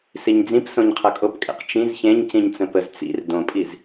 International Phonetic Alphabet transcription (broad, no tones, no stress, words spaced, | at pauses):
siɲd͡zĩp sõɲqʰʌkʼopkʼḛq t͡ʃĩz çẽɲ cĩɲt͡sə̃pəz t͡sḭr dõpʼiz